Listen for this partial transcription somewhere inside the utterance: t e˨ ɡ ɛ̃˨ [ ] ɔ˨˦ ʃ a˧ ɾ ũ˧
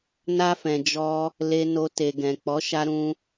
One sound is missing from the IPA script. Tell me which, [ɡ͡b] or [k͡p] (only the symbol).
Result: k͡p